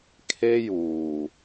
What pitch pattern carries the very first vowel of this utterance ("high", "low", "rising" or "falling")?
high